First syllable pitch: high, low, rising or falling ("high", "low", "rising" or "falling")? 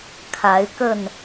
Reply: rising